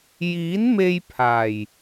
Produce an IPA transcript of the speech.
jiː˨˥nme˧jpʰaː˨˩j

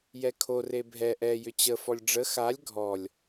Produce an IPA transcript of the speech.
jɛkʰo rebʱɛ ʔɛ jʏt͡ɕə fɔlʲɖ͡ʐə xalʲ ɡʱɔlʲ

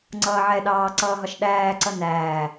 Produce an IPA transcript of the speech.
ŋ͡ǀʌːʕɛɗɑː ǀʌːɦɒʃɗæːǀʌ næː

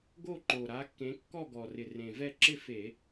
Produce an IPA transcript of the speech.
ɡo˥˧ǃo˨˩ɾa˨˦kːẽ˨˦ kːɔ˥˧ɡɔ˨˩rɪ˨˩ rẽ˨˩vɛ˥˧ ǁɪ˥˧ fe˧˩˧

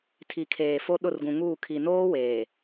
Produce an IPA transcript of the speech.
tʰi˨kʰeː˨fo˦ ɗʊ˦˨rɡũ˨ŋuː˦˨ kʰi˨noː˦ weː˨

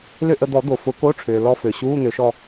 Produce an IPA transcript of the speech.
lʏ˥˧ ʔə˧d̪ɔ˨˩˦ d̪o˩fʊ˨˩˦ko˧˥˧ʈ͡ʂʰʏː˩ lɔ˧fø˩ ɕuː˧˥˧ n̪ʏː˨˩˦ʃɔ˥˧

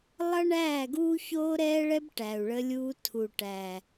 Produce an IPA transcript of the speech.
lˠʌ˦ɳæː˦˨ɡuː˦ çoː˦ɾɛː˦ɭɛ˦b ʈæ˨u̯ɭə˧lʲuː˧ tʰu˨ʈæ˨

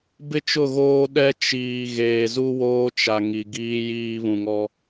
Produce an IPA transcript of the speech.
bɪ˦ t͡ʃʊ˦˨ɣoː˦ ɗɛ˦ t͡ʃiː˨ ɣeː˨zu˦woː˦t͡ʃa˨ ŋi˨ɡiː˦ jiː˦βũ˨ŋɔ˦

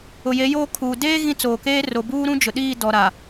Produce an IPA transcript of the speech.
ʊ˨je˨˦joː˦kʰuː˨ deː˦ ɣĩ˦ t͡soː˨ keː˦ ro˨buː˦ɾũ˦ d͡ʒʊ˨ɗiː˦˨ dɔ˨ɾa˨

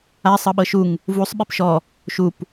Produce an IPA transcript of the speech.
a sˤɤɓɤʃuŋ | vusˤ ɓipʃɔ | ʃup

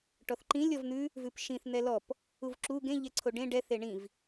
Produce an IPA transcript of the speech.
ʈɔθǃĩlʲ ɔvn̪ʉ | vʉpʃĩθ n̪ɛlɔp | uvǁu ɡẽ ʎɛǀʰoɖẽ ɖɛ θeɳĩv

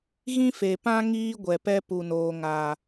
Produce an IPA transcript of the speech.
ɣĩ˦fe˨pã˦ ŋiː˦ɡʷɛ˨pɛ˦ pu˨noː˨ŋaː˨

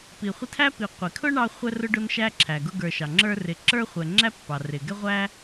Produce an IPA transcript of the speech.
pi˩ χʷɪ˦tʰæ˥pi˨ qʷi˩kʰʊ˥ ɳɑ˥χʷɛ˥rʊ˥ ɖʊ˦nʃæ˦ǁʰæ˩ ɡʊ˦ɡə˞˨ʃɑ˩ŋ͡ǁə˞˦ rɪ˨ ǁə˞˥χʷɛ˨ŋ͡ǁæ˥ pːɑ˩rɪ˩ ɡɛ˥ʁʷæ˥

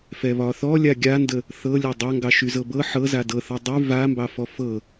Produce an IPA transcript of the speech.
fɛβɒθɔ lʲaɡʲandə | θɤlʲa dˤaŋɡɑʃy zɤbɤ ħɤ zadɤθɔ dˤy vambɑfɔ fɤ

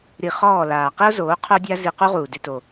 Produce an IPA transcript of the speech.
ɾi˨ χɔː˦˨laː˨ qi˦o̯zoː˨˦ qʰo˦dʲa˦ zi˧qu˦ʁuː˨ dɪ˧to˨

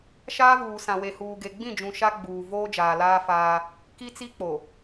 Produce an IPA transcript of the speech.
ʃaː˦vuː˨ sã˨we˨huː˨ ɡe˨ɡ͡bĩ˦˨d͡ʒũ˨ ʃa˦ ɡ͡buː˨ voː˦d͡ʒaː˨laː˦ faː˦ | ki˦t͡si˦k͡po˨

